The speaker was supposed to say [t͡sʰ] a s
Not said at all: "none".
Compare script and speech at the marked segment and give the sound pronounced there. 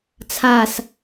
t͡sʰ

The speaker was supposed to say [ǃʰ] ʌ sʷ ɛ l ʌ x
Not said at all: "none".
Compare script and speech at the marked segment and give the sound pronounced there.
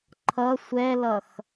ǃʰ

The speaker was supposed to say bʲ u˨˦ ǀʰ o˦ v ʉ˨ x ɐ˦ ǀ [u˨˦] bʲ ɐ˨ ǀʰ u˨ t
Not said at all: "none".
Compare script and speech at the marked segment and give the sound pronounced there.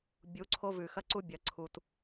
u˦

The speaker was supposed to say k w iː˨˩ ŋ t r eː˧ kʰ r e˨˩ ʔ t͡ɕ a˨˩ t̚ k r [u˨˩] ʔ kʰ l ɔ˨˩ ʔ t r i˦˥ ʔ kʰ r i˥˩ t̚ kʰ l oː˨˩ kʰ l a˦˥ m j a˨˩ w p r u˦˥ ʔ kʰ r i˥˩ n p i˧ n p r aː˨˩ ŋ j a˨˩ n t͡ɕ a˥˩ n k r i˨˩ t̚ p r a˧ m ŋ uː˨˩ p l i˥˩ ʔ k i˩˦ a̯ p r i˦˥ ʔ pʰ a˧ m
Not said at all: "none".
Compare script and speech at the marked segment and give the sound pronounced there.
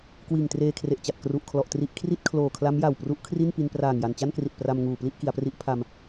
u˨˩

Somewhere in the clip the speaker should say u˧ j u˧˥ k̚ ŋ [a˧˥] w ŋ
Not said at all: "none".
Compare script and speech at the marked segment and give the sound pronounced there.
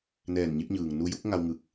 a˧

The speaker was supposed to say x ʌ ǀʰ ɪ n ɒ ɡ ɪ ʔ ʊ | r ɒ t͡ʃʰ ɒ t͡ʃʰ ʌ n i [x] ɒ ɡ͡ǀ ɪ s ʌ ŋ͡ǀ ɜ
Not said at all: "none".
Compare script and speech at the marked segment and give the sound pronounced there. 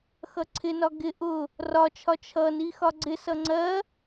x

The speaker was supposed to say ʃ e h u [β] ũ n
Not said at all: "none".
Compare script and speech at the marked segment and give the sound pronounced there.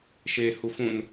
f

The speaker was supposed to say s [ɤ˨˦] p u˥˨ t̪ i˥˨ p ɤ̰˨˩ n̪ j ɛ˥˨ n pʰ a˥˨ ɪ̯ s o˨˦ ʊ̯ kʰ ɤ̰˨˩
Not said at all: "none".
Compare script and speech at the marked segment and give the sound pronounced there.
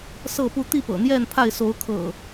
ɤ˥˨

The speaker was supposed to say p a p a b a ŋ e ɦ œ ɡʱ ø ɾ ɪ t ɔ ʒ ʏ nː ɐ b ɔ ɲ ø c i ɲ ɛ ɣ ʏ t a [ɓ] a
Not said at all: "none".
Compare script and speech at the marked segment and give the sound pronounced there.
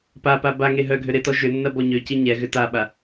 ɓ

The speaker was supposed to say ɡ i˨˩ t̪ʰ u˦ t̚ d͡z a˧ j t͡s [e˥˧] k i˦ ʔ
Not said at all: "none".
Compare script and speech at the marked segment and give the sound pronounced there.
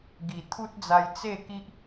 e˥˧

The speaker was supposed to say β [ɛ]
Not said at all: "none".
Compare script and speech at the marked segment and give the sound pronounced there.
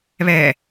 ɛ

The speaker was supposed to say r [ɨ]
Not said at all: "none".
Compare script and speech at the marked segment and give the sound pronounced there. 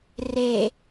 e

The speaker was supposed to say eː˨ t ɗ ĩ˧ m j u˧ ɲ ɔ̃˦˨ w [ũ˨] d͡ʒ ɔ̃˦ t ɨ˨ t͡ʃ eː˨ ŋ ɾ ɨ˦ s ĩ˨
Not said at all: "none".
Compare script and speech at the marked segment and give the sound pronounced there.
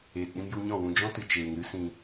ũ˨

